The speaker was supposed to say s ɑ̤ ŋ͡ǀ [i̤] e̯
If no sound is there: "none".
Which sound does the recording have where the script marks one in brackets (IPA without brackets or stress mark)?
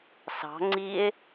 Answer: i